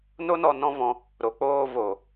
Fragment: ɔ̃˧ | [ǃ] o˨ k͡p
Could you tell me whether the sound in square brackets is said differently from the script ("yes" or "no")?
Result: yes